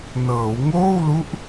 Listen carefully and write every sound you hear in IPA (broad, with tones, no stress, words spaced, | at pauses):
nɤː˩˦wŋoː˥˩wlu˦˥ʔ